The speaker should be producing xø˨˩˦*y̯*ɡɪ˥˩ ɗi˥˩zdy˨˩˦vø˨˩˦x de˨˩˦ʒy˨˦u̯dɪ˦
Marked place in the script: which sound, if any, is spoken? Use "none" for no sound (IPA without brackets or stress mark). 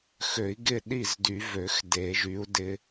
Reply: i̯